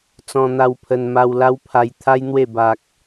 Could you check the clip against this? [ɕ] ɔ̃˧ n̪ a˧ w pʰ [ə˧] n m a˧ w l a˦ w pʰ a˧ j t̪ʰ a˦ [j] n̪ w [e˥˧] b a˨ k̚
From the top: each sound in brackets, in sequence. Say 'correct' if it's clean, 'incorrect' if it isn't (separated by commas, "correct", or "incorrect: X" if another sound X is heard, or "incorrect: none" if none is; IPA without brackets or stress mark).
incorrect: t͡s, correct, correct, correct